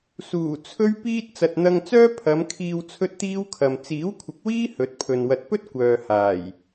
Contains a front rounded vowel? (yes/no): yes